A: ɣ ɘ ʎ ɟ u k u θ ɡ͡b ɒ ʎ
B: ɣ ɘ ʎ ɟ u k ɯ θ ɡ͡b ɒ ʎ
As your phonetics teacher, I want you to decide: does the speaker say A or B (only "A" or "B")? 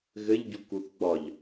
A